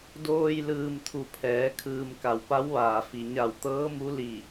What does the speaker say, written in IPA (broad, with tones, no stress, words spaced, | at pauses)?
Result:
doː˧j lɯː˧mt̪ʰu˧˩pʰɛː˩˧ kʰɯː˩m ka˩wpa˧˥wʋaː˩fi˩ ɲa˧˩wt̪ɤː˧˥mu˧˥ li˧˩